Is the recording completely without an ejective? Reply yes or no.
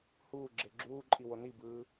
no